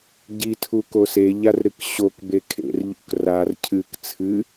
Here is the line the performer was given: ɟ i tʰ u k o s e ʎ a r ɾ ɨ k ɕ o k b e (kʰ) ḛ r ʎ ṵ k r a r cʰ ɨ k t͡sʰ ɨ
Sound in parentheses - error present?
no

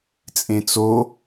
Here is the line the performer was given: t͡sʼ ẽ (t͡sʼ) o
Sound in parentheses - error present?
yes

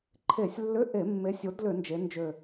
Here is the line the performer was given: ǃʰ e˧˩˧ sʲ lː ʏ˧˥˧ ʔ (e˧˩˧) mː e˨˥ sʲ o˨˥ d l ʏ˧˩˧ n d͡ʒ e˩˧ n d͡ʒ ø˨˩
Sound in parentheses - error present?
no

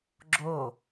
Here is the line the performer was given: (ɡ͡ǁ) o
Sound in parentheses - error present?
no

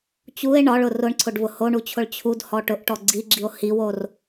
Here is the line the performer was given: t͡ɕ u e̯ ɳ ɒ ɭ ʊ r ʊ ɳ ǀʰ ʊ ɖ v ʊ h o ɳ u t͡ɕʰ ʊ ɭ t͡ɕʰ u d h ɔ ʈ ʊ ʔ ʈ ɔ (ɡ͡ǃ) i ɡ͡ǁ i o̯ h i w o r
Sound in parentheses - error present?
yes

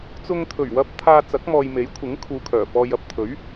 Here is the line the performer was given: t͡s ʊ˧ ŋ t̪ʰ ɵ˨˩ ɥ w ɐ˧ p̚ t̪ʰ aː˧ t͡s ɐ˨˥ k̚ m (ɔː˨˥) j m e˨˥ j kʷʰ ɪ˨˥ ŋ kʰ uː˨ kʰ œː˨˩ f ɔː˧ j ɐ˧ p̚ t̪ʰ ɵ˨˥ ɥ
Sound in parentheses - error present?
yes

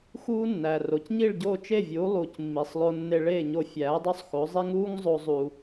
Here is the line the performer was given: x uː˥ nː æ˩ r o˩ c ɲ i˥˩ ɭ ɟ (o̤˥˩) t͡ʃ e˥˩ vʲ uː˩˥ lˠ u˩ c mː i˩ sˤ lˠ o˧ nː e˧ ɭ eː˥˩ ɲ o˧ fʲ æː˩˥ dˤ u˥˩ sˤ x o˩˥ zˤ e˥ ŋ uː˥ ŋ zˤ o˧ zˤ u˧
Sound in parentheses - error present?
yes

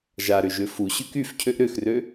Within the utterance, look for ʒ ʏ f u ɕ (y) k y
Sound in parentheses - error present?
no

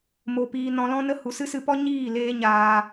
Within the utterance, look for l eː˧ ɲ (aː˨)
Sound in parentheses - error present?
yes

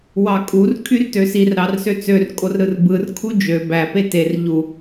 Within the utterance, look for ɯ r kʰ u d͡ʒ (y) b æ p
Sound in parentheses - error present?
yes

